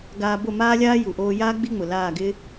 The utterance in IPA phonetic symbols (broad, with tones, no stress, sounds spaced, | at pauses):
ɡ aː˧ b o˦˨ m aː˦ lʲ aː˦ j u˨ ʔ oː˧ j aː˦ ɡ͡b i˦ ŋ͡m ʊ˨ l aː˦˨ ɡ ɪ˦